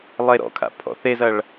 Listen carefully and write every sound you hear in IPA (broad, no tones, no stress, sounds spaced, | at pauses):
lˠ e ɾ ɔ̰ kʰ a̰ pʰ ɔ̰ θ e z ɐ ɭ